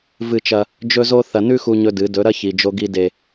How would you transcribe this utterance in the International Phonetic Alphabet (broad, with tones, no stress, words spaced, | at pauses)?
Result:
vɨ˦˨t͡ʃɐ˦ | d͡ʒɵ˦zo˦ θɐ˨nʉ˦ xu˦ɲɵ˦dɨ˨˦ dɵ˨˦ɾɐ˦ çi˨d͡ʒo˦ɡi˦ de˨